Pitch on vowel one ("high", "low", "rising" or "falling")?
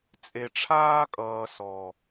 low